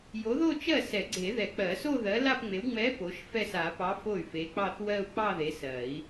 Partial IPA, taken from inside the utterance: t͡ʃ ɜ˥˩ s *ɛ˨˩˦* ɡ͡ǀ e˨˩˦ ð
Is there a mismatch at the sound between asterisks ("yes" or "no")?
no